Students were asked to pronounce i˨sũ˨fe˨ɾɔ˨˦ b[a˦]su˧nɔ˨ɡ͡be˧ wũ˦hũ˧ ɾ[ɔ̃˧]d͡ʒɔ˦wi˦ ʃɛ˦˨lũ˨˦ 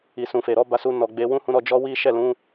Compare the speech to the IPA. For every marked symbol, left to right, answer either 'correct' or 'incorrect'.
incorrect: a˧, incorrect: ɔ˧

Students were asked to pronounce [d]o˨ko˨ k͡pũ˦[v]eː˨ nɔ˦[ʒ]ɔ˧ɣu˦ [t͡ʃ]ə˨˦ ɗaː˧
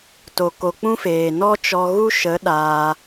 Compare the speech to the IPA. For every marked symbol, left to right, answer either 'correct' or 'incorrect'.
incorrect: t, incorrect: f, incorrect: t͡ʃ, incorrect: ʃ

